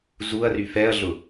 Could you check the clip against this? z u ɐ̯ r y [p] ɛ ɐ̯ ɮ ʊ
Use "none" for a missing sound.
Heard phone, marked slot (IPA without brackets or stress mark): f